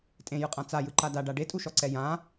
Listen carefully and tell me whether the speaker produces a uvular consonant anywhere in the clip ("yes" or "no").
yes